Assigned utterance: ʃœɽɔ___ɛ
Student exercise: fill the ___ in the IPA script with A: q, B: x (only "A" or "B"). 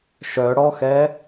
B